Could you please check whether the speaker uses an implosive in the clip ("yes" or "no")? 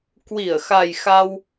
no